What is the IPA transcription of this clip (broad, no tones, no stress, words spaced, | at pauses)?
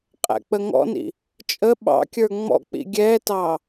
qʼæ̰k͡pəŋɔ̰nḭ | t͡ʃʼə ɓɑ̰kʲə˞ ŋ͡mɔ̰k͡pḭ ɡʲɛːtɑ